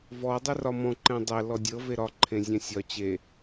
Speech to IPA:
v ɔ dˤ e r ɒ m ɔ̃ ǃ ɛ̃ dˤ ɛ l ɔ dʲ ɤ v e ɾ ɒ ǃʰ ẽ zʲ ɛ̃ sʲ ɒ t͡ɕ e

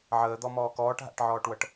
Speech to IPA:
ʕ əː d̪ ɔ m ɔː k ɔː ʈ ɦ a̰ ʈ ʕ ɔː ʈ w ɤ ʈ

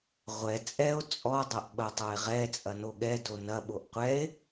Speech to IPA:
ʁʷ ɛ t͡sʼ ɛ o̯ t͡sʼ ɔ dˤ ɐ ʔ ɓ ɐ tˤ o e̯ ʁ ɛ t͡sʼ ɐ n o ɠ ɛ d o n ɐ ɓ o ʔ qʷ ɛ e̯

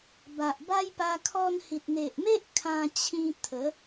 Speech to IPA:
b a˨ ʔ b a˦ j p a˧ kʰ ɔ˧ n h i˨ t̚ n̪ e˨ ʔ m e˦ ʔ kʰ ã˧ t͡ɕʰ ĩ˧ t̪ʰ ə˨˦

